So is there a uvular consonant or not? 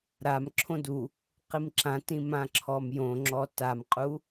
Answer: yes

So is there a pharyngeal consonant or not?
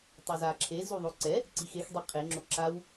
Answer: no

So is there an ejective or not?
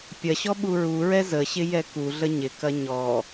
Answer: no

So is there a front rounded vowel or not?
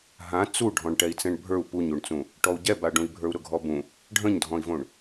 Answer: no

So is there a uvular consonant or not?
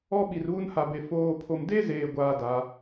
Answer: no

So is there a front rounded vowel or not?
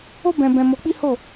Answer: no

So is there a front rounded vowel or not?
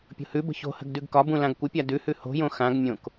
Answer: no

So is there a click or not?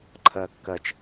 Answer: yes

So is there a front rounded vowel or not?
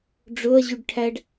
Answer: yes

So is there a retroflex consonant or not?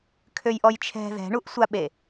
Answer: yes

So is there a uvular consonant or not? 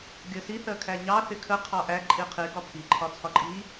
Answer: yes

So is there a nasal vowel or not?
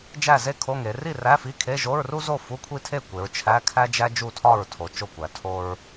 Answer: no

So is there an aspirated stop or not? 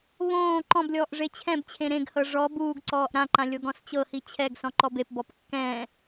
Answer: yes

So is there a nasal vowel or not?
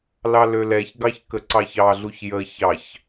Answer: no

